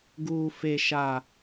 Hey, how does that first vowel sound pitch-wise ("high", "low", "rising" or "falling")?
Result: high